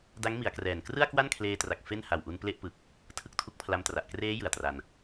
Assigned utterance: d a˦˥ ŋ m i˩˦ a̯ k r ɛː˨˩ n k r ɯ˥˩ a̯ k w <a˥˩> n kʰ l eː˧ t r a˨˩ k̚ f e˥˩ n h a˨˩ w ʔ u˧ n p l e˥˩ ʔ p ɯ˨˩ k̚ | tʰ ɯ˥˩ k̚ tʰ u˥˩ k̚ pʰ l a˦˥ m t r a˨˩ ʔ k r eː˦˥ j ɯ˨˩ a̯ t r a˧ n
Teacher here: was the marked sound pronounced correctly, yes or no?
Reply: yes